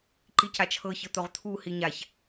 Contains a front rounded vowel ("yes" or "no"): no